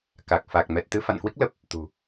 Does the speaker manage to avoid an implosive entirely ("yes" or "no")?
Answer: yes